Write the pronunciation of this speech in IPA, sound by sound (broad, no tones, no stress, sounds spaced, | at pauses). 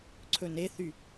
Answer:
ǀʰ ɵ n e θ y